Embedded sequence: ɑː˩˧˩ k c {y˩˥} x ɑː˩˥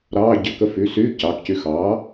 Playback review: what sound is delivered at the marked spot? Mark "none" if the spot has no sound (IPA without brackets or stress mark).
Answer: y˧